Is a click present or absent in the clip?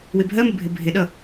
absent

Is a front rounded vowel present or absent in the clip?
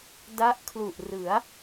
absent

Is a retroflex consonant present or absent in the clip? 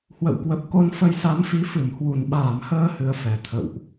absent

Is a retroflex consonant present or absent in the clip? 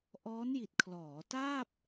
absent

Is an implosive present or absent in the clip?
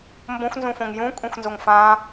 absent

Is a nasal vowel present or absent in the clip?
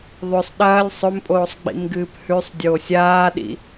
absent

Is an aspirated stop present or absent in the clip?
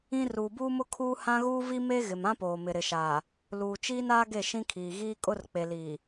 present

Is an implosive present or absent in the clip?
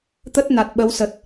present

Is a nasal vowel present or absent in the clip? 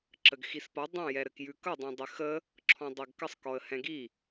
present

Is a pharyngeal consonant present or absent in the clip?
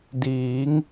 absent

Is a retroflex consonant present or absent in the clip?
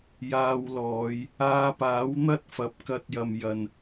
absent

